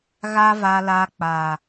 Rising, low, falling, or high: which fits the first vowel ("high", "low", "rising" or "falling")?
high